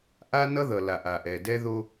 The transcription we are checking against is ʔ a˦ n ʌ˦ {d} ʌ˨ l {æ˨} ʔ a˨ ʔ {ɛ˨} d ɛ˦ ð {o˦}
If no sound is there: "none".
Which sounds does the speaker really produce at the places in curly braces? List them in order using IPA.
ð, a˨, ɛ˨, o˦

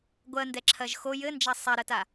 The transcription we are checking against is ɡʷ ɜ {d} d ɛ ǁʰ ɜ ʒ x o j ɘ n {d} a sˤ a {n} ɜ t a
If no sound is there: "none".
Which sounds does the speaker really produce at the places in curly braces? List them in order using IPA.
n, d͡ʒ, ɾ

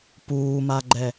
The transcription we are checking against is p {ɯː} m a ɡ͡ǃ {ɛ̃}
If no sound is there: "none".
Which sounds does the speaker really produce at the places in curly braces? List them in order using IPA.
uː, ɛ

